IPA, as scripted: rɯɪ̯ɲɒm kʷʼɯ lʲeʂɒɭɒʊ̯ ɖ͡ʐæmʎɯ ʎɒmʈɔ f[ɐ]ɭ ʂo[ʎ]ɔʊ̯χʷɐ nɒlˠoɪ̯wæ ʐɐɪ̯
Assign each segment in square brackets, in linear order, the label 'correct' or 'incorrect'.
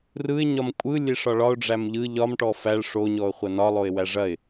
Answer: incorrect, incorrect

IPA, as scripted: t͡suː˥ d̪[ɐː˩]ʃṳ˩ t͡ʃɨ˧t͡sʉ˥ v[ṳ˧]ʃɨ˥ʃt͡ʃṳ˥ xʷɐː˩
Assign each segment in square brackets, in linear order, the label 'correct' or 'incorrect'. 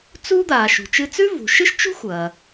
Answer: incorrect, incorrect

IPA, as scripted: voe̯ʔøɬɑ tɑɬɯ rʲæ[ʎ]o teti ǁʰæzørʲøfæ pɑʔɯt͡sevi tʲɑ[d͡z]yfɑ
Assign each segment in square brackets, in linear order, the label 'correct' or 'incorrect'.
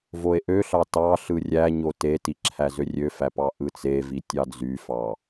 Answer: incorrect, correct

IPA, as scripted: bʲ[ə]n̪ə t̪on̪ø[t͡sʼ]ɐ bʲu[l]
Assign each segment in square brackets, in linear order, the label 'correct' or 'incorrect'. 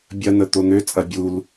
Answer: incorrect, correct, correct

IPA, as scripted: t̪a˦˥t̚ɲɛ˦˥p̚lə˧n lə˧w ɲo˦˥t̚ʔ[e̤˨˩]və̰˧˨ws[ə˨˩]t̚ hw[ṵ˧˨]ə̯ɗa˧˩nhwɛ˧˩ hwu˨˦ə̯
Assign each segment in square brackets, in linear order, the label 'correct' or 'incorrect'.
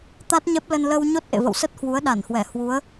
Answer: incorrect, incorrect, incorrect

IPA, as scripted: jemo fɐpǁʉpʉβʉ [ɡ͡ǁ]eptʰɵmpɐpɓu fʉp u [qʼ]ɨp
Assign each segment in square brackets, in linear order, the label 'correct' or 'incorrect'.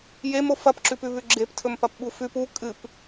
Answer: correct, incorrect

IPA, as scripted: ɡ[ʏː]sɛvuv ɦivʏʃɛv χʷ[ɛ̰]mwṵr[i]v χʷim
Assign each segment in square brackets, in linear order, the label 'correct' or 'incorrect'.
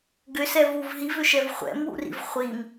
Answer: incorrect, correct, incorrect

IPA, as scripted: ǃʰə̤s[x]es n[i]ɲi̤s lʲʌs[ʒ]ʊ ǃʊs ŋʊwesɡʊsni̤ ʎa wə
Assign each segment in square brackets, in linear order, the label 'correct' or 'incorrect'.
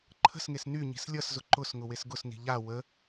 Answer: incorrect, incorrect, incorrect

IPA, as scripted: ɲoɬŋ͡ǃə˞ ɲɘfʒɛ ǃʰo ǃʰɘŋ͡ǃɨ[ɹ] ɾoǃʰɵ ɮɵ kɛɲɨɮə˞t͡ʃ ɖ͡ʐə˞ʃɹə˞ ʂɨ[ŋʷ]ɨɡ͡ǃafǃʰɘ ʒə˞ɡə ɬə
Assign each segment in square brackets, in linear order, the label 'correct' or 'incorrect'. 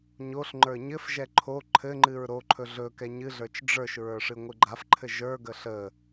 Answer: correct, correct

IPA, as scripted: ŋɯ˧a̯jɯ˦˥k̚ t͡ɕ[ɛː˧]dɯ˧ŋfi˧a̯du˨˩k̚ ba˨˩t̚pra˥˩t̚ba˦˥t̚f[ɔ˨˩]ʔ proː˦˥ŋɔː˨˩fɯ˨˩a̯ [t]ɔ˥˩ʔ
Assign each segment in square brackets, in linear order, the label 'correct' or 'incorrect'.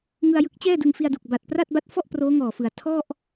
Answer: incorrect, incorrect, incorrect

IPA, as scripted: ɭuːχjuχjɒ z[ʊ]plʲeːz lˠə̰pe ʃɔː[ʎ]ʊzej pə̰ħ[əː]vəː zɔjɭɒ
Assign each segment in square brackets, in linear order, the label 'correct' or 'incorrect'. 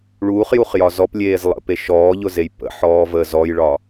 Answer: incorrect, correct, incorrect

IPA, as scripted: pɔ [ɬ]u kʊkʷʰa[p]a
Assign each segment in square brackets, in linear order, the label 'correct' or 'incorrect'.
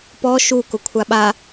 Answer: incorrect, incorrect

